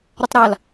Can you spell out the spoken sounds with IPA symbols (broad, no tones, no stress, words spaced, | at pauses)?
ɾətˤɾal